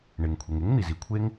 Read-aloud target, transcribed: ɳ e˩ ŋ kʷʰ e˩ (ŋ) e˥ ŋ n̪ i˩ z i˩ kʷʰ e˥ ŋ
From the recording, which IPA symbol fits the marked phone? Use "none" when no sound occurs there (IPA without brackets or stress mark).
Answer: ŋ